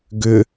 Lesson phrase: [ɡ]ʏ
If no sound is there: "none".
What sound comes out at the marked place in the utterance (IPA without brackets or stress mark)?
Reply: ɡ